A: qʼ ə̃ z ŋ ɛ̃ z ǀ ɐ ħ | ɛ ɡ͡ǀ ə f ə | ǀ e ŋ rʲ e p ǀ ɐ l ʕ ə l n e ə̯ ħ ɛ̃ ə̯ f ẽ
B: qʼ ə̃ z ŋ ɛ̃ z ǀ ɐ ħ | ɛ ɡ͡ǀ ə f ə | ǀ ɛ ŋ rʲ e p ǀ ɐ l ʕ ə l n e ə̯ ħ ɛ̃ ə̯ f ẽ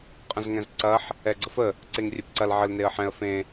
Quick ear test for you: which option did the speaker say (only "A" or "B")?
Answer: A